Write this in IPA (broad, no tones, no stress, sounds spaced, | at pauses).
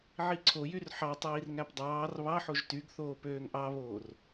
ʕ i ǀʰ o j y r ħ ɑ tˤ iː r ŋ æ p dˤ ɑː r β ɑ ħ o ʒ t y ɡ θ oː p øː ŋ ʔ ɑ β oː r